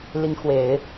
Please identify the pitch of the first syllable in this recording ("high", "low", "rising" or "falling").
rising